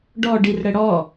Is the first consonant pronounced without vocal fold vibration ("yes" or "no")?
no